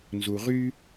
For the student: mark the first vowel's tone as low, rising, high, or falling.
low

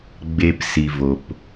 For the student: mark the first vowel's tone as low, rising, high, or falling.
low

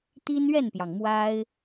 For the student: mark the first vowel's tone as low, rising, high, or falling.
high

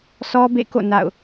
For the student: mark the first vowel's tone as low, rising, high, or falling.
high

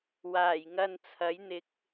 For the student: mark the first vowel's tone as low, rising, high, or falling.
low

